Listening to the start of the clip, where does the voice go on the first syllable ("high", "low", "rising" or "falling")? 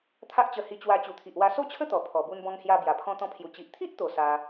high